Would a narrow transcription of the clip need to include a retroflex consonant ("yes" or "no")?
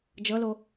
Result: no